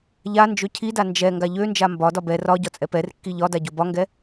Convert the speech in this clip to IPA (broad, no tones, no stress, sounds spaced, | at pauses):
ʎ a n d͡ʒ ø cʰ i d a n d͡ʒ ɛ ŋ ɡ a ʎ ø n d͡ʒ a m b ɒ d ɒ b ɛ r ɒ ɟ ɒ t͡sʼ ɛ p ɛ r kː i ʎ ɒ d a ɟ o b ɒ ŋ ɡ ɛ